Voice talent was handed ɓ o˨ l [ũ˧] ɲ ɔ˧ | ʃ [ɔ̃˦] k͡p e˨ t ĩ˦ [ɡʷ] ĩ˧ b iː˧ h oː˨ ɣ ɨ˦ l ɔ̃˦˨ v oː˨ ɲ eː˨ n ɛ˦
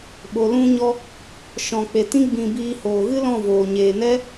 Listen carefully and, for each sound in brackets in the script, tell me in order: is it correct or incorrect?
correct, incorrect, incorrect

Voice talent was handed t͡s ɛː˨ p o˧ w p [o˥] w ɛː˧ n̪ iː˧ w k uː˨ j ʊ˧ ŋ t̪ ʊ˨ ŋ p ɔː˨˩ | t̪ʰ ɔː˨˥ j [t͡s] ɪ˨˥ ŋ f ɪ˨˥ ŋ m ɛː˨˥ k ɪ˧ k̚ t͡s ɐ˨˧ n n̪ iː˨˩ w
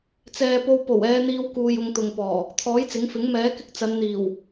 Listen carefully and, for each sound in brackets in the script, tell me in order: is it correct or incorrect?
incorrect, correct

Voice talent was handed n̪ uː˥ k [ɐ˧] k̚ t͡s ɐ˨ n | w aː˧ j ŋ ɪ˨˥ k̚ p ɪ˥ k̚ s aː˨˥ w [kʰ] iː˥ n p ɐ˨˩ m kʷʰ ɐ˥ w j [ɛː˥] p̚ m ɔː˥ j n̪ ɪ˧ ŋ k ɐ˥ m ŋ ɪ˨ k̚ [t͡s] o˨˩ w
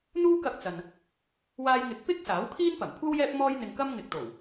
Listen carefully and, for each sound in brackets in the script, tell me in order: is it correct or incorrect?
correct, correct, correct, incorrect

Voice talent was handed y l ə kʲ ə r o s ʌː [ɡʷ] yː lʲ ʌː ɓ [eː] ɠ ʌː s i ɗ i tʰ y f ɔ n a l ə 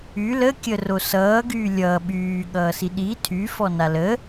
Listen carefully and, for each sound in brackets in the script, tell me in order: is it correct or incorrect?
incorrect, incorrect

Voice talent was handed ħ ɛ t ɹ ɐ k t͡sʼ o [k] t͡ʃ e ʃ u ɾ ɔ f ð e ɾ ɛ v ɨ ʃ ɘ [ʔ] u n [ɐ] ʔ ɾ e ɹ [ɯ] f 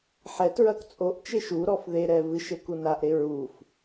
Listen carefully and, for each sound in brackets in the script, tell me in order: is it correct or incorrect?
incorrect, incorrect, incorrect, incorrect

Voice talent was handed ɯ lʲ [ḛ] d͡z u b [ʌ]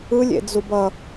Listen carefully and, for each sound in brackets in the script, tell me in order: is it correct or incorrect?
correct, correct

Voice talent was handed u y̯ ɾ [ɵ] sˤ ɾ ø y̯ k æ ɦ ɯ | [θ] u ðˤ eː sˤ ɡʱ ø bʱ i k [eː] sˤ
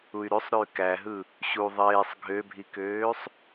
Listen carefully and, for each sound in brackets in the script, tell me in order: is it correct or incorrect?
incorrect, incorrect, incorrect

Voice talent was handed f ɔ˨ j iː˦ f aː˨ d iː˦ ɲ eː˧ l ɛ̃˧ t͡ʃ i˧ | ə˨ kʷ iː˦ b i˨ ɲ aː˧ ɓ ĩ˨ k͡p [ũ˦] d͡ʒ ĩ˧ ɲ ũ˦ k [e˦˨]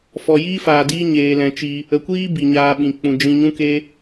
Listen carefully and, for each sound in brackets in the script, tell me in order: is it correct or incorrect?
incorrect, incorrect

